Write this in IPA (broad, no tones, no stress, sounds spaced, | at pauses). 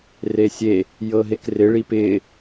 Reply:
r e sʲ e | j ɤ ɦ e k r ɪ ɭ i p ɪ